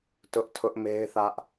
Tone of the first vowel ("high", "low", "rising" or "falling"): high